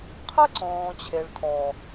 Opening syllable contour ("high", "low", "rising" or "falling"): high